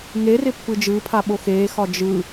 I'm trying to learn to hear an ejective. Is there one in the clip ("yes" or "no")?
no